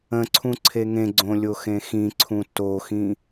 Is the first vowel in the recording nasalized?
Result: yes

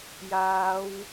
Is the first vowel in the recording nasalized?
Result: no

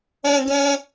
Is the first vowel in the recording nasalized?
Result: yes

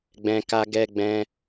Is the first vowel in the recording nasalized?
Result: yes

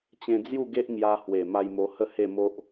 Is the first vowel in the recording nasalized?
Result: yes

